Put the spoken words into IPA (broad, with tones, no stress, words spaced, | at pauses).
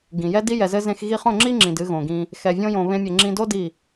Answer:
ɡĩ˨ jɛ˦di˦ jɛ˨zɘ˧ zẽ˧x ɣi˧χõ˦˨ ŋ͡ǁi˦ŋ͡ǁĩ˨d ɨ˧ ɣõ˨ɡĩ˧ | xɛ˧vʲõ˦jõ˧ βẽ˦mʲe˧ ŋ͡ǁĩ˧do˦ di˦˨